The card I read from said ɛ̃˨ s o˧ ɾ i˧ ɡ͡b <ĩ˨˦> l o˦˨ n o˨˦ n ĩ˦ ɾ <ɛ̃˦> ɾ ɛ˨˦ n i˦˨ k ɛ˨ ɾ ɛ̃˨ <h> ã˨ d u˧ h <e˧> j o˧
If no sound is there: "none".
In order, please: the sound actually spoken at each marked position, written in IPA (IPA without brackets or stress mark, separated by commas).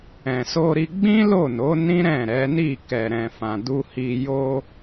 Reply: ĩ˦, ɛ̃˦˨, f, i˧